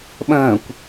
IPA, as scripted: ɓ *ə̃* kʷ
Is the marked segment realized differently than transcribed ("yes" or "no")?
no